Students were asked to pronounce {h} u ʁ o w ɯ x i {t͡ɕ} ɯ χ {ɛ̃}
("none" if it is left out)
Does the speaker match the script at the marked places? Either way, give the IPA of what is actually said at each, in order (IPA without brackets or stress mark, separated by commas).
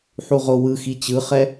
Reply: ħ, t͡ɕ, ɛ